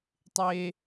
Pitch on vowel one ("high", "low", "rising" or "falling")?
high